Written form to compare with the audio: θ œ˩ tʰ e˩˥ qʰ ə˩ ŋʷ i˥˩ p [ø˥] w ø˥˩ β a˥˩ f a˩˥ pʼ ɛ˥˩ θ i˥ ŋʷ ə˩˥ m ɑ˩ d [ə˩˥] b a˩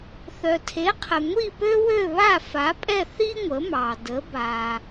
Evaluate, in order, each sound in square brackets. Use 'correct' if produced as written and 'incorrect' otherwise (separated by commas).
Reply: correct, correct